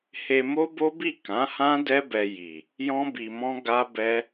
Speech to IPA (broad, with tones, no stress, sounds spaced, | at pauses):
h e˧ m o˦ b o˦ b i˦˨ k ã˨˦ h ã˦ d ɛ˦ b ɛ˧ j i˨ | j ɔ̃˦ b i˧ m ɔ̃˦ ɡ a˦ b ɛ˦